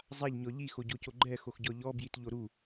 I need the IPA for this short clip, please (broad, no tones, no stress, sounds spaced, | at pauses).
zˤ a ʎ ɲ ɔ ʎ i x o ɟ o c o ɡ͡ǃ ɛ x o x ɟ ɔ ʎ ɔ b j i t ʎ o ɾ u